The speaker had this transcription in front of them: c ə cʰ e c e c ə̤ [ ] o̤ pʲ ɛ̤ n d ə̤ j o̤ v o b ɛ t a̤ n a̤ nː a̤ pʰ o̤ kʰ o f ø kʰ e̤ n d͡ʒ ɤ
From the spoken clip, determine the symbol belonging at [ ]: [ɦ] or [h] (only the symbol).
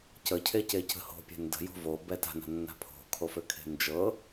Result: h